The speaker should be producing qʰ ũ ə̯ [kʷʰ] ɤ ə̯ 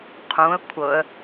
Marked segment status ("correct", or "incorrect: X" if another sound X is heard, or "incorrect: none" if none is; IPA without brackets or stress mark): correct